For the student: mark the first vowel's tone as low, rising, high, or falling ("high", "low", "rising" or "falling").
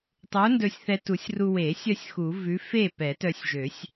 rising